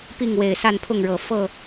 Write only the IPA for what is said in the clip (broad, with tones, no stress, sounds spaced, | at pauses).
p i˥˨ ŋ w e˨˩ ɪ̯ s a˥˨ n pʰ ʊ˥˨ ŋ ɻ ɤ˨˩ f ɤ˥˨